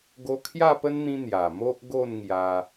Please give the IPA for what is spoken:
ɡ o˧ kʰ j a˥˧ p ə˦ n n̪ ĩ˦ n̪ j a˨˩ m o˦ ʔ ɡ o˥˧ n ŋ j a˧

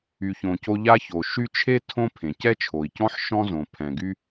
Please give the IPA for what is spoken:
y˨ ç õ˨ c o˦ ʎ a˦ ç o˩ ʃ y˦ t͡ʃʰ e˥ tʰ õ˥ pʰ ẽ˩ c ɛ˥ t͡ʃʰ o˩ i̯ c ɔ̃˥ ħ ʃ ɔ̃˥ z õ˩ pʰ ɛ̃˩ ɡ y˦

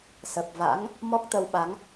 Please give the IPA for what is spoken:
s ə˨˩ p̚ v a̰˧˥ ŋ | m ɔ˦˥ k̚ t̪ ə˧ w ɓ a˨˦ ŋ

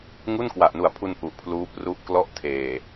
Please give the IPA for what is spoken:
ŋ u˥˩ n k w a˨˩ ʔ n u˨˩ a̯ pʰ u˧ n ʔ u˨˩ ʔ pʰ l uː˦˥ p r u˦˥ ʔ k l ɔ˥˩ ʔ tʰ eː˨˩

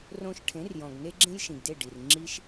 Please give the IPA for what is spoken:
r õ˧ ʃ ʈʰ ẽ˨˦ r j ɔ̃˨ ɡ n e˦ ɡ͡ǁ ẽ˦ j ʃ ĩ˨ ɡ d e˦˨ ɖ i˨ r ŋ͡ǁ i˦ ʃ

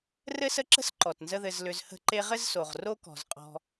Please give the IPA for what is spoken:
r ɘ˦ s ə˦ ǁ ə̤˦ s ǃ ɔ˨ t n z ə˦ ð ɘ˧ z l ʏ˧ z h ə̤˦˨ ǃ e˦ ʁ ɘ˦ z s o˨ ʁ r o˦ k ɔ̤˨ z qʼ ɔ̤˧

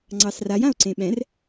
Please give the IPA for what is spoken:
ŋ͡ǀ ɑ s r a j ã o̯ ǀ ẽ ɓ ɛ̃ r

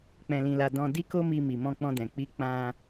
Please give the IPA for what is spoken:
k͡p ɛ̃˧ l ĩ˧ l a˧ d ɔ̃˧ d i˦ k o˦ m i˧ m i˨ m ɔ̃˧ k͡p ɔ̃˧ d ɛ̃˨ k͡p i˨˦ k͡p ã˧

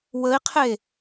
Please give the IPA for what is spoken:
w ə i̯ qʰ e

